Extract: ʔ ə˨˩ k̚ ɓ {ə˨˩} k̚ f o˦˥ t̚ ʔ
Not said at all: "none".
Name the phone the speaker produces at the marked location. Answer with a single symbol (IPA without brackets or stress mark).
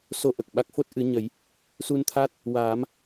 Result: a˨˩